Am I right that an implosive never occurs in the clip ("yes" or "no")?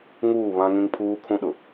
no